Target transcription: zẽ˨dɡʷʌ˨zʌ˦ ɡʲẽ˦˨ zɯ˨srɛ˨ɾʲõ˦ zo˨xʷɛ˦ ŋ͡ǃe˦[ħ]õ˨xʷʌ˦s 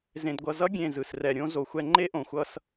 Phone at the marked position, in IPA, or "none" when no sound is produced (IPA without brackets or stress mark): ʔ